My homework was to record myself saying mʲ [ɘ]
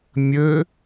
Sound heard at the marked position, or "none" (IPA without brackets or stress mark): ɘ